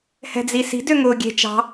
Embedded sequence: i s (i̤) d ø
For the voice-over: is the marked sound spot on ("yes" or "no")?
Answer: yes